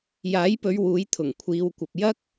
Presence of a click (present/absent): absent